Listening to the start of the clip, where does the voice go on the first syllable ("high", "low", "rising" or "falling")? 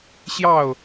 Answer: falling